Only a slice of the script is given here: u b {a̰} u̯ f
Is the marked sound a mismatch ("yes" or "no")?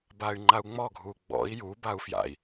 yes